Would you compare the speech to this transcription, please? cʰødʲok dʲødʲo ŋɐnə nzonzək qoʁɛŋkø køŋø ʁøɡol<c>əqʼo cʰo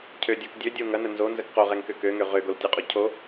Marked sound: incorrect: tʲ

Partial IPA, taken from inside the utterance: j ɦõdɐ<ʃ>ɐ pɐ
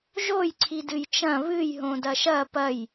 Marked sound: correct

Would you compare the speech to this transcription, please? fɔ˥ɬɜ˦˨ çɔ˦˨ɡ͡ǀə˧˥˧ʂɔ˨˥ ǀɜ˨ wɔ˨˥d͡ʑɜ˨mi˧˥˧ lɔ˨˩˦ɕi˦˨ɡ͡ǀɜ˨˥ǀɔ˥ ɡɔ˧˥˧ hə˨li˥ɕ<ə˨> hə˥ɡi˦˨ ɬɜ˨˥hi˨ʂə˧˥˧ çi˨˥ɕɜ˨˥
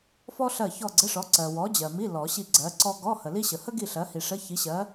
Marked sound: correct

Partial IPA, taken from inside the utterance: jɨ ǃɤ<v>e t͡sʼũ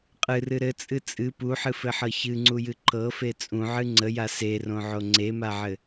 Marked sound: incorrect: f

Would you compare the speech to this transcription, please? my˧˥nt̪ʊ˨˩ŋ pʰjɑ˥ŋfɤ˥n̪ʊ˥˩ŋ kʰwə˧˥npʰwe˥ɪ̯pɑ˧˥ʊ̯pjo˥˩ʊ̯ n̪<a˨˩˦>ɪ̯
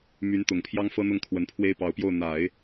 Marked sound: correct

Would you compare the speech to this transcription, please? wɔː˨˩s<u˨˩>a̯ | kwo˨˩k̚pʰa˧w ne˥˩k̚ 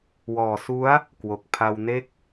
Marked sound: incorrect: u˦˥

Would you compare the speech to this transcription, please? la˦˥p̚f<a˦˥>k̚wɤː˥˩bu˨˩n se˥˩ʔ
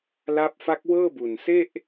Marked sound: correct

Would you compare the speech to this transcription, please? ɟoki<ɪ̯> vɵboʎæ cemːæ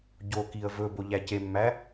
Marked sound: incorrect: ə̯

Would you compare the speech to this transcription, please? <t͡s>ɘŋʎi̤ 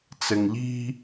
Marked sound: correct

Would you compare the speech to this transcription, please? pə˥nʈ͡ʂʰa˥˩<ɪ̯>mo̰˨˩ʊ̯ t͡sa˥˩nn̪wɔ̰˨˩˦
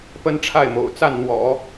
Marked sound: correct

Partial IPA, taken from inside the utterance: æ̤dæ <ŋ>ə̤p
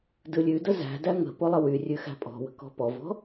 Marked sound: correct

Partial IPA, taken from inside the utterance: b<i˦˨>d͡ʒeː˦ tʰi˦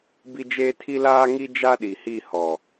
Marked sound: incorrect: i˦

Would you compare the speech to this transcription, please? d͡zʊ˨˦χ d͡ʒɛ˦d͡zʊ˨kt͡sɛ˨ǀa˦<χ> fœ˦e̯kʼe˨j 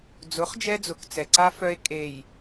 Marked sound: incorrect: none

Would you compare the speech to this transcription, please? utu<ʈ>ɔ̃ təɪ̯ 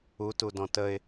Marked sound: incorrect: d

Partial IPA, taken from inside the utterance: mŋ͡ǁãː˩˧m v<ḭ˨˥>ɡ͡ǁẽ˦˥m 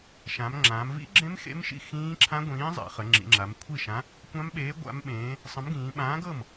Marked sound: incorrect: ḭ˦˥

